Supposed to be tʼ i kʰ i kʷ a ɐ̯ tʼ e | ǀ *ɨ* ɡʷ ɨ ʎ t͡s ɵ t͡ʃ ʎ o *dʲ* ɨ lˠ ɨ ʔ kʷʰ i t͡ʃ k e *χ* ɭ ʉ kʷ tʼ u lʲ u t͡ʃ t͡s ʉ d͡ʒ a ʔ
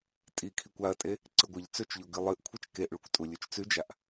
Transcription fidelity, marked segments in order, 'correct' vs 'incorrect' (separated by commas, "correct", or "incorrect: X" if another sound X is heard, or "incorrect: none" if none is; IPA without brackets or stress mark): correct, incorrect: ɡ, incorrect: ʔ